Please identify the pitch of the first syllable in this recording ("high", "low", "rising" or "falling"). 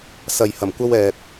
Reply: low